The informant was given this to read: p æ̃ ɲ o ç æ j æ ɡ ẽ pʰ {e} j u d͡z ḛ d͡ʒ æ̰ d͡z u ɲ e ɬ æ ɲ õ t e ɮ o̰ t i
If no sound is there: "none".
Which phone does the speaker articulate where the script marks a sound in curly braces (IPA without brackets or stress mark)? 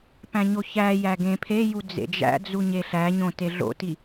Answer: e